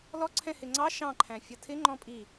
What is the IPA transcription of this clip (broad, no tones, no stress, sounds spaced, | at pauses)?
l ɔ ǀʰ ɛ̃ h ɪ ŋ͡ǀ ɑ ʃ ɑ̃ ǃʰ æ̃ fʲ ʌ tʰ ɪ ŋ͡ǃ ɔ̃ pʼ i